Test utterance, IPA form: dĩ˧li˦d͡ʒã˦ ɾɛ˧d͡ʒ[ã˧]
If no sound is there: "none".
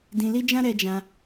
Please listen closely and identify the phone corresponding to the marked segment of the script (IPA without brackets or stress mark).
ã˧